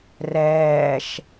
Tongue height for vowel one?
mid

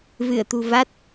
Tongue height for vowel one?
high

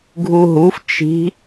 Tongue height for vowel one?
high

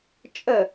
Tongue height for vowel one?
mid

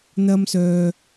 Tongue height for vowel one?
low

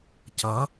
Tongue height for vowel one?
low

